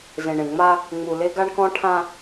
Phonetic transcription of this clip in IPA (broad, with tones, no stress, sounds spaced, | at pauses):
z ẽ˨ ɳ ẽ˨ ŋ͡m a˦ | ŋ͡m u˨ l e˦ ɡ a˦ ɳ k ɔ̃˦ ʈʰ ã˦